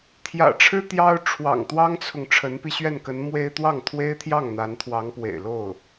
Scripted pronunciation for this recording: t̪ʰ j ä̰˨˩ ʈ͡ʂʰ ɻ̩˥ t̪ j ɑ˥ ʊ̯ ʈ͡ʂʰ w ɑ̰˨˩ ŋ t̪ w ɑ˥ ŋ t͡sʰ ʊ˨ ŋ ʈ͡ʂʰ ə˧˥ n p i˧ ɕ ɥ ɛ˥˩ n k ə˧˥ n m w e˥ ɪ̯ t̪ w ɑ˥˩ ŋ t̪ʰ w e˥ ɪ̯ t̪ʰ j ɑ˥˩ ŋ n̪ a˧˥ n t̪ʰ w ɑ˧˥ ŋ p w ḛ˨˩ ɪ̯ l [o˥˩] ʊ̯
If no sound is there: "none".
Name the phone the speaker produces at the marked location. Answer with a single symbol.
o˥˩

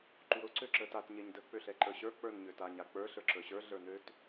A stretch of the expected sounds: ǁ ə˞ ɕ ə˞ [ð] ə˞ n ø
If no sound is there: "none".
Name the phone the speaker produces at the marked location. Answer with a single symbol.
ɮ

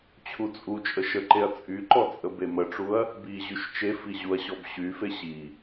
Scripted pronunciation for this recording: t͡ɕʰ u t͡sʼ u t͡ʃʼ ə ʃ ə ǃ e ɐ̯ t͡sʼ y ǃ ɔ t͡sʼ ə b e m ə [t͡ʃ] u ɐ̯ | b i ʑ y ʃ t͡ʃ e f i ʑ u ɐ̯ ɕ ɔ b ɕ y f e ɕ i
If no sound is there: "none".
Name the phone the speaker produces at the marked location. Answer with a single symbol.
ʈ͡ʂ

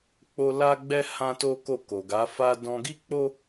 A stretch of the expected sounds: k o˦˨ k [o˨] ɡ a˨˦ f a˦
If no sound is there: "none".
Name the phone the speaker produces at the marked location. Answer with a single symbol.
o˨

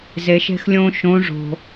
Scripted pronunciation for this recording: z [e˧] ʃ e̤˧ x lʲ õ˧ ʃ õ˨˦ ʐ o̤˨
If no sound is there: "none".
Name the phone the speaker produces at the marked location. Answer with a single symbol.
e˨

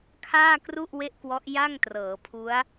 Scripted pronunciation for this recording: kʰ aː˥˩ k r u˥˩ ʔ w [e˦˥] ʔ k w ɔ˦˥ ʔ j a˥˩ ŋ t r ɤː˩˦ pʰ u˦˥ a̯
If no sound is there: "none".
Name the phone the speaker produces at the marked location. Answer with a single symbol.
e˥˩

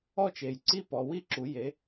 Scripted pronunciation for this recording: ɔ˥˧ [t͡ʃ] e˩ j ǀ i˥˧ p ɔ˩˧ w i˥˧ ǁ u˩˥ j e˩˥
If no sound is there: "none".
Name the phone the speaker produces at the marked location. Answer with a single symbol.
t͡ʃ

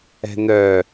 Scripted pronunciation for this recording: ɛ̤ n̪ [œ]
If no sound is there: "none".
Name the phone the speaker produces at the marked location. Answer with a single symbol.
œ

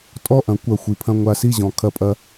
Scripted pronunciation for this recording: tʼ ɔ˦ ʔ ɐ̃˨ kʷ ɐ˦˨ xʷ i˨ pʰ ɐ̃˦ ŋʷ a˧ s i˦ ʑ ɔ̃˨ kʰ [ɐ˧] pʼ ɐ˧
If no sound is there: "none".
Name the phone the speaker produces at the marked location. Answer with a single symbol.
ɐ˧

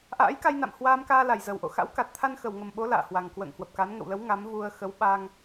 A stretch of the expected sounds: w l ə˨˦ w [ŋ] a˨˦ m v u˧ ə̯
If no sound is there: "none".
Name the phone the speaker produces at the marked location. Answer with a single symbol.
ŋ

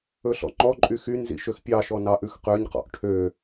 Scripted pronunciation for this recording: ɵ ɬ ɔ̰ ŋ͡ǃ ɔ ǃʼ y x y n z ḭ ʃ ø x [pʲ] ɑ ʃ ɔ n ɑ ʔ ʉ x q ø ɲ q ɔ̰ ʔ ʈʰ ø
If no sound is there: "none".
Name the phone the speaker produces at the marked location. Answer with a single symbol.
pʲ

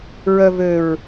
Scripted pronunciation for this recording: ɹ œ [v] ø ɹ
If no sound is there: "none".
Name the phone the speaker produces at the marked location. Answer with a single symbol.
v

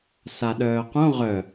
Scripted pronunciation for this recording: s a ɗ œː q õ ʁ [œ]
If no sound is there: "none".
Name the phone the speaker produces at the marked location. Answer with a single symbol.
œ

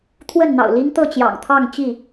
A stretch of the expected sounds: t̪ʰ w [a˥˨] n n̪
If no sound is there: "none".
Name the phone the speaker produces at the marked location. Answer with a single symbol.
ə˥˨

